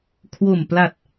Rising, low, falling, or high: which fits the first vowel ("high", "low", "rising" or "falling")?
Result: low